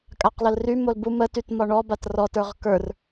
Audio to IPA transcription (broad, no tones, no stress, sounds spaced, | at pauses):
kʼ a q l ə l r y m o l b u m ə t y t m ɒ ɳ ɔ b a t r ɔ t ə˞ ʁ k ə˞ r